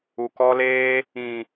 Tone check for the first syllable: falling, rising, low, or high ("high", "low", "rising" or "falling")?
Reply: low